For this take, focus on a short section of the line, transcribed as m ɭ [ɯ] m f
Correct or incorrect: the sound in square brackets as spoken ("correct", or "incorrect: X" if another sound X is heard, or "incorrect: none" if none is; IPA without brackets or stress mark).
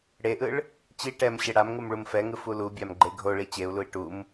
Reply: incorrect: u